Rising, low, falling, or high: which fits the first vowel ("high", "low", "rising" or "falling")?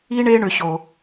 high